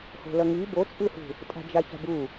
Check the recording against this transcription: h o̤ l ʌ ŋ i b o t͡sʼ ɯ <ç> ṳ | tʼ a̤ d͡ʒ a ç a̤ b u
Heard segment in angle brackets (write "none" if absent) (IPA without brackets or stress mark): h